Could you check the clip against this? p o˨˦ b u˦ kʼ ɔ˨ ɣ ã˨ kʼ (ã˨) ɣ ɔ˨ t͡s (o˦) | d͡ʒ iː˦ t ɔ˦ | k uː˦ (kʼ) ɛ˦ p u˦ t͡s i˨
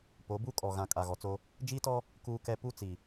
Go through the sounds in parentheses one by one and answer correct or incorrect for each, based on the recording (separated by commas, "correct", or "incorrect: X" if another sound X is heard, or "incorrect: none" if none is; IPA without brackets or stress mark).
incorrect: a˨, correct, incorrect: k